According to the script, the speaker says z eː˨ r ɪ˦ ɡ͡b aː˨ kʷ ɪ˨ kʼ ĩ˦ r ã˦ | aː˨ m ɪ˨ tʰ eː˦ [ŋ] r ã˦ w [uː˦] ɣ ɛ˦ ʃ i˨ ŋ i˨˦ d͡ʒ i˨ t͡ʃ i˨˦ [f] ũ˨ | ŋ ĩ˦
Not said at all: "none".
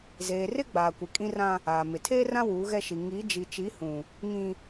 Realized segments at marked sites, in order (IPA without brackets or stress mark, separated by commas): none, uː˨˦, h